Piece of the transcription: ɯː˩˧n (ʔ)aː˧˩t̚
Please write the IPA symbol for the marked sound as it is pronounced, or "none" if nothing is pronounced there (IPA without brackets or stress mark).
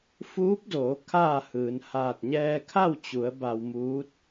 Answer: h